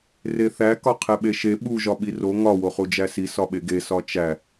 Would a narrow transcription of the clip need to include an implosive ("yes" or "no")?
yes